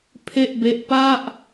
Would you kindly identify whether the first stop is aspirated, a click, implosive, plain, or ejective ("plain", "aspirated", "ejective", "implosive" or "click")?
aspirated